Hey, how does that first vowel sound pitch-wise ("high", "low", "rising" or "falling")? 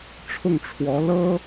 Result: falling